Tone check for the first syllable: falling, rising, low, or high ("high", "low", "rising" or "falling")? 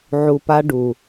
low